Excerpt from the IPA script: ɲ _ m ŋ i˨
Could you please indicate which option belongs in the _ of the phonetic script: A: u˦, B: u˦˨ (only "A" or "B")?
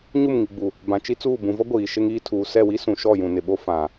B